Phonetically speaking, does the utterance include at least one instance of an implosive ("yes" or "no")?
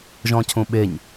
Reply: yes